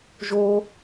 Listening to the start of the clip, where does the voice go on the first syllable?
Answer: high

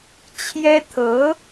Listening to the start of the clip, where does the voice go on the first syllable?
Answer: high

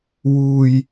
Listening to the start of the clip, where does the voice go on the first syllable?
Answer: low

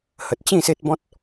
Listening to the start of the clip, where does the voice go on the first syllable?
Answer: low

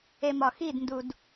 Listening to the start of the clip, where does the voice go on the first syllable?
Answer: low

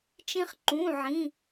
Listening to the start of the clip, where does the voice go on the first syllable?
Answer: high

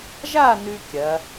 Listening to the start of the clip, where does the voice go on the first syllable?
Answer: falling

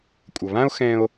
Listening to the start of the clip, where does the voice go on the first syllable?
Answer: low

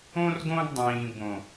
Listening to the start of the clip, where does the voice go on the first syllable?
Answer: high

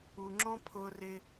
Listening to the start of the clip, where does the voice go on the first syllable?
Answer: low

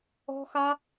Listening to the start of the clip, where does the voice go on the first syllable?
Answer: high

